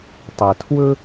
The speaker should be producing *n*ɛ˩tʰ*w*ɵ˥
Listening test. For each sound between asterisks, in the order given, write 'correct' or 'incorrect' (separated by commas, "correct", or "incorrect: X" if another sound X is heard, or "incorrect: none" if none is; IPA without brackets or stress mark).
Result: incorrect: tˤ, correct